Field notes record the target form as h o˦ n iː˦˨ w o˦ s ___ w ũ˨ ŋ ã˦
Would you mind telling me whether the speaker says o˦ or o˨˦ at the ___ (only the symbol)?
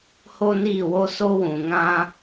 o˦